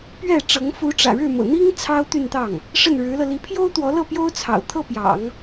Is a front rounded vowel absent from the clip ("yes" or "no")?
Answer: no